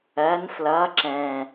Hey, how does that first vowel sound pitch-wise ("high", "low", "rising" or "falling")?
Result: rising